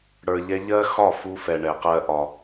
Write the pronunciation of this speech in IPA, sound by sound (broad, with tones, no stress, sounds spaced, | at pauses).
ɽ ə˞˧ ʎ ɛ˦ ʎ ɜ˦ x ɒ˦˨ f u˧ f ɛ˨ ɳ ɛ˨ q ɜ˧ ʔ ɒ˨